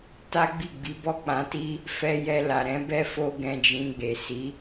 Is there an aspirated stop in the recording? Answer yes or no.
no